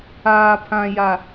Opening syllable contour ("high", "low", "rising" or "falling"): low